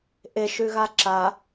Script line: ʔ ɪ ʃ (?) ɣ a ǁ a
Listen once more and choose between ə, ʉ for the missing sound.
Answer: ʉ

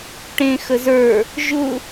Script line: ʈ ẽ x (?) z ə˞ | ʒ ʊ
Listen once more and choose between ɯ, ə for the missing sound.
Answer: ə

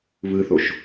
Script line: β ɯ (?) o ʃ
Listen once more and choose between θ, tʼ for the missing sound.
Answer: θ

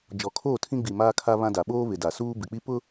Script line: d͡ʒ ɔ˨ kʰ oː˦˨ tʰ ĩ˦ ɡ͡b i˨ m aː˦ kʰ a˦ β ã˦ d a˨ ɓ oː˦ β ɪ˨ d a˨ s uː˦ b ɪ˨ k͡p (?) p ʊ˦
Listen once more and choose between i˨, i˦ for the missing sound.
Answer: i˦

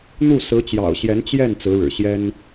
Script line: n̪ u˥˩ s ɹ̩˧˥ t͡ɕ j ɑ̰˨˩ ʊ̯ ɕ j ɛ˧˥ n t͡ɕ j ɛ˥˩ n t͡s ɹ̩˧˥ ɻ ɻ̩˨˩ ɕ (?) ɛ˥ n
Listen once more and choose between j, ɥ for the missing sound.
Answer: j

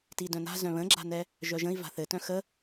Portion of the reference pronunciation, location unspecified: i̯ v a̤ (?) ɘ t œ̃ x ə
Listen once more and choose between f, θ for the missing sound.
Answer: θ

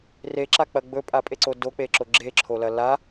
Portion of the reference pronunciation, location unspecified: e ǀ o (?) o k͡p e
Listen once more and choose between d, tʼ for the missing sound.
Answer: d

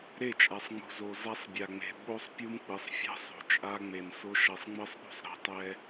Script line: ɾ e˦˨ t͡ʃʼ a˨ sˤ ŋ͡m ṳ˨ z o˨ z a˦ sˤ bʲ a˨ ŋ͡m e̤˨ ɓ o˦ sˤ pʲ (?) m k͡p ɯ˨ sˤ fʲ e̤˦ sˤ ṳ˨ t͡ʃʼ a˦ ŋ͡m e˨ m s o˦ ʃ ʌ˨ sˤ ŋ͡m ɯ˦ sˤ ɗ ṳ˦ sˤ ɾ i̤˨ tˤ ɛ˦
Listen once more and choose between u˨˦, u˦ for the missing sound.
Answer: u˦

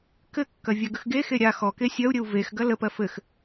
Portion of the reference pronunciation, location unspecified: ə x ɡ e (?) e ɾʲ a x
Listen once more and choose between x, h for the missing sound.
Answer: x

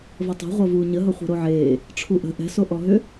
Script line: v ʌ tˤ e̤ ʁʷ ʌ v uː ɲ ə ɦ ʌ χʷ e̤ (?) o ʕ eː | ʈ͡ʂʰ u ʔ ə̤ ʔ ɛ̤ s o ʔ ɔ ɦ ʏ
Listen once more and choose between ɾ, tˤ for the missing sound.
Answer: ɾ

